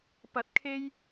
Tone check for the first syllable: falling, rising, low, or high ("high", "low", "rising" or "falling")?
rising